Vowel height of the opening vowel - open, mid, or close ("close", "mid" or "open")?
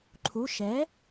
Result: close